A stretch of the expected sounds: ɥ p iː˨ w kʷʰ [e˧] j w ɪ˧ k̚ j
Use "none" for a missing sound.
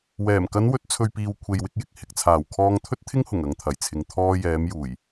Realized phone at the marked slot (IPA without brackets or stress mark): e˨